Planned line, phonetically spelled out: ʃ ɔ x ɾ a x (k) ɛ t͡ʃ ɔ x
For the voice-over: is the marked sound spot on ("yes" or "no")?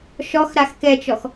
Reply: yes